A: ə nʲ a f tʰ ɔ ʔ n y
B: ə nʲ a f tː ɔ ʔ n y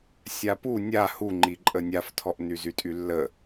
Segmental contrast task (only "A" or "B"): A